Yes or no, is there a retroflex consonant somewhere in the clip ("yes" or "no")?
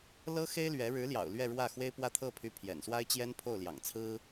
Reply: yes